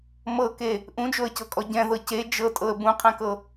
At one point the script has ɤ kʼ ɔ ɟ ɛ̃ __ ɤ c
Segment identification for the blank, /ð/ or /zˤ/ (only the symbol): ð